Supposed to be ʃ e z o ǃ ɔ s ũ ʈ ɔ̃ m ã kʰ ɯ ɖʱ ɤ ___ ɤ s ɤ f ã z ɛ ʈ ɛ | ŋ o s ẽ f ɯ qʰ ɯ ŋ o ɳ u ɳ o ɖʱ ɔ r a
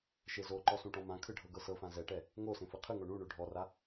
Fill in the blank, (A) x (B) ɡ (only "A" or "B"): B